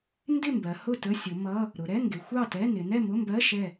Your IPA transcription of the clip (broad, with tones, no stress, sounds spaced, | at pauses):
n d ɪ˥˨ m b ɜ˩˧ h ʊ˥˨ t ə˧˥˧ sʲ ʊ˩˧ m ʌ˧˥˧ | ɾ ʊ˩˧ ɾ ɛ˧˥˧ ŋ ɡ ɪ˩˧ xʷ ɑ˥˨ t ɛ˧˥˧ n ɪ˩˧ n ɛ˥˨ m ʊ˧˥˧ m b ɜ˧˥˧ ʃ ɛ˥˨